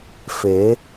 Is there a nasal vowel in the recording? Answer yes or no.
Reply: no